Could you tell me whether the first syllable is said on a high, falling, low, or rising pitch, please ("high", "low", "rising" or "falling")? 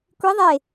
rising